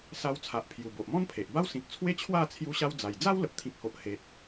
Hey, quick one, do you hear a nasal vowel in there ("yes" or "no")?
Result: yes